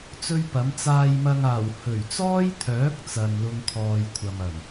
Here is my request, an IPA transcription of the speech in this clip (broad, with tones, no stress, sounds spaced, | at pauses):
t͡s ɵ˥ ɥ p ɐ˨˥ m t͡s aː˧ j m ɐ˧ ŋ aː˨˩ w h ɵ˨˩ ɥ t͡s ɔː˥ j t̪ʰ œː˨˥ k̚ t͡s ɐ˧ n l ʊ˥ ŋ kʰ ɔː˧ j kʷʰ ɐ˨ m ɐ˨˩ n